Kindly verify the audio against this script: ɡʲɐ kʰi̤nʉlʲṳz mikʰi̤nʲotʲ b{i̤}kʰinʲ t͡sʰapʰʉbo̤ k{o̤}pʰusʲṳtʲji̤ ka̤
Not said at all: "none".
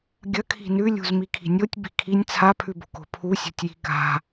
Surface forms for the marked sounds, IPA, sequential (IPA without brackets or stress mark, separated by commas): i̤, o̤